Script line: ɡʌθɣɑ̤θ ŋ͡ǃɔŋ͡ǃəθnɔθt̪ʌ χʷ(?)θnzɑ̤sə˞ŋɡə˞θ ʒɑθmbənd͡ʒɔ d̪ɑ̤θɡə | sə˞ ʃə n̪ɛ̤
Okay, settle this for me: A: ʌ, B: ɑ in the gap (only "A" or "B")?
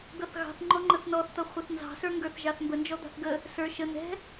A